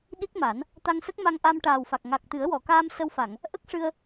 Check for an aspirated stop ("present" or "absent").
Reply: absent